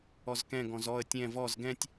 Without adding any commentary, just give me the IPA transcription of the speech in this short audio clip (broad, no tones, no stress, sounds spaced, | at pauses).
ɔ z k ɛ̃ ɡ ɔ̃ z ɔ ə̯ tʲ ɛ̃ v ɔ z ɡ ɛ̃ tʲ